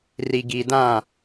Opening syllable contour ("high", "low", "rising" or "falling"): low